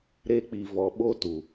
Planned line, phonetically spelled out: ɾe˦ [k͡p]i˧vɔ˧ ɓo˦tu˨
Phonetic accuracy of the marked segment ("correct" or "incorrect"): correct